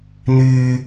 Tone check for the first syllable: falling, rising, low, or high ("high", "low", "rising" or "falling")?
low